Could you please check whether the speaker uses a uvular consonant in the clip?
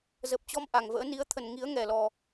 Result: no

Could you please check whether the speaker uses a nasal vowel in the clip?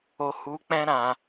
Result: yes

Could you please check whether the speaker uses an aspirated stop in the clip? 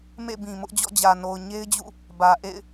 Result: no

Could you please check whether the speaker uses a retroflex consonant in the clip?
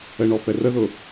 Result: yes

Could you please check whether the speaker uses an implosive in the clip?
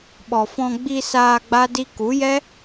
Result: yes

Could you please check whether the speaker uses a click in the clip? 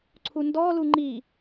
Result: yes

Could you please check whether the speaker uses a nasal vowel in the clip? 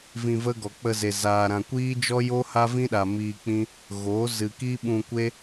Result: yes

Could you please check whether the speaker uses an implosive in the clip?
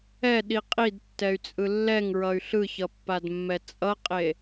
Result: yes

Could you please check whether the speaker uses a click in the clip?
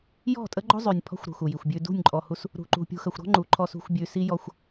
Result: yes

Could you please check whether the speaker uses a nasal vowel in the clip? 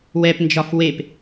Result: no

